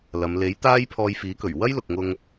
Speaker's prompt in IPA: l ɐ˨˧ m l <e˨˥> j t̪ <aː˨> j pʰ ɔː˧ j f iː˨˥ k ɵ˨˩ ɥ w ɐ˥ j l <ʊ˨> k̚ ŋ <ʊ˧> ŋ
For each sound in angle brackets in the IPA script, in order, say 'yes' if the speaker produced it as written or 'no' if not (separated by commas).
yes, no, yes, yes